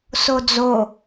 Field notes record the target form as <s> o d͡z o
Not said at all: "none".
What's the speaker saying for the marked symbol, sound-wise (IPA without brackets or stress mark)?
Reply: s